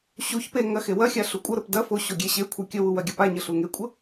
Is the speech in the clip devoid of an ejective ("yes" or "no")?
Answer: no